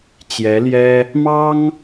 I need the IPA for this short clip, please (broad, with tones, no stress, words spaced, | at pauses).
t͡ɕjɛ˧˥ljɛ˥ | mɑ˥ŋ